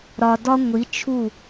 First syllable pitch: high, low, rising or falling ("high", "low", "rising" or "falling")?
low